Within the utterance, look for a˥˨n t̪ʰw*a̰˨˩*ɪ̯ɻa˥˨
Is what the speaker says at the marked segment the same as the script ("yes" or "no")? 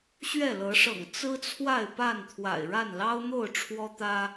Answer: yes